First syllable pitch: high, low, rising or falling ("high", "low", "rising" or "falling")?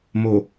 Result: low